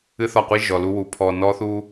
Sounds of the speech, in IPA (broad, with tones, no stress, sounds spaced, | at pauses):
ɨ˦ θ ɒ˦˨ qʷ i˦ ʒ ɔ˨ l u˦ w u˨ pʰ ɔ˧ n ɔ˦ θ u˦